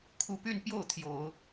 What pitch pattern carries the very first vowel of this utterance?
rising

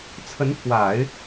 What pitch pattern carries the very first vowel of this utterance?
rising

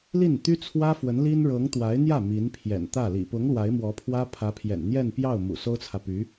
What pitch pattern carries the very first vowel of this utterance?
falling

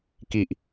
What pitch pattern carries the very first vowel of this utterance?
low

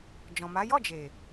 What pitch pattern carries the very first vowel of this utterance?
low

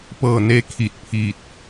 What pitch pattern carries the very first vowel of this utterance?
falling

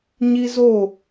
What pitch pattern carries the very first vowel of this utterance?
high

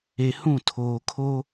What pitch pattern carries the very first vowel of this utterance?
low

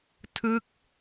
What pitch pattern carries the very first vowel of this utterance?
falling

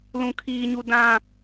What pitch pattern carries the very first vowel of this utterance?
low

